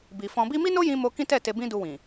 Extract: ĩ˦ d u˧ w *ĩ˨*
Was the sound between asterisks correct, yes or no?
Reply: yes